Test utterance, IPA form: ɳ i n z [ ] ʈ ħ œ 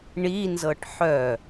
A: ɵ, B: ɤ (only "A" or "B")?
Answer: B